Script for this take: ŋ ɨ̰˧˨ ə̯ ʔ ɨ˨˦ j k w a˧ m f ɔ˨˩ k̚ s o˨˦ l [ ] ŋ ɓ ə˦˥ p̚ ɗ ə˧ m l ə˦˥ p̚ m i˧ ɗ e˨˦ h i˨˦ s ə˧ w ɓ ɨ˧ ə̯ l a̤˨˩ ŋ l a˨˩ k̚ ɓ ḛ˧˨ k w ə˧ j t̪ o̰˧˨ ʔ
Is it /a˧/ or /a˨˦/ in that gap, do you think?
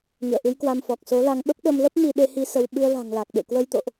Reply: a˧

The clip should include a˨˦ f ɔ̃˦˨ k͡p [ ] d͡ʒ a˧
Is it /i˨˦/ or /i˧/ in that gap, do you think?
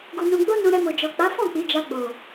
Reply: i˨˦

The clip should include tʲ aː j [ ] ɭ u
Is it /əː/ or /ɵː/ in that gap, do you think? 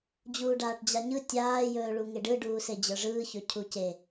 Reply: ɵː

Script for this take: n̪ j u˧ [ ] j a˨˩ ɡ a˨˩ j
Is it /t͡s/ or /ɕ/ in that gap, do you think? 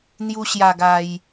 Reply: ɕ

